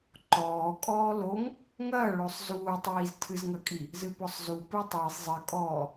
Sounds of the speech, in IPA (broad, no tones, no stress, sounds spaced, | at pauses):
ǃ ɔː kʼ ɔː l o ŋ | ŋ ɐː ɭ o sˤ z uː tˤ iː z tʰ ɨ z ŋ ɐ kʼ i | z ɨ p ɔ sˤ z u p ɨ tˤ iː sˤ zˤ ɨ kʼ ɔː